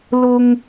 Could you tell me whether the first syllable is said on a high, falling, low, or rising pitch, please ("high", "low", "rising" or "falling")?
high